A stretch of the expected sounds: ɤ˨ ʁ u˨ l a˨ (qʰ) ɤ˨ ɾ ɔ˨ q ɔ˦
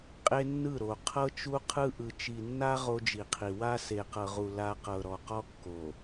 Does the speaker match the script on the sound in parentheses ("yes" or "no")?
no